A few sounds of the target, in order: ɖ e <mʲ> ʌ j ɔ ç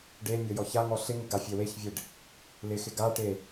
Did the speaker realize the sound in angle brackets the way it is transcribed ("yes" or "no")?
yes